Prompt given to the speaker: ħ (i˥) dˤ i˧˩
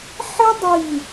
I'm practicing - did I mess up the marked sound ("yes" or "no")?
no